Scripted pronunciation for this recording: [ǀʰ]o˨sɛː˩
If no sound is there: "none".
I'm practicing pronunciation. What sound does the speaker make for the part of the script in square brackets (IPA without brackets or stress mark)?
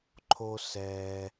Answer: ǃʰ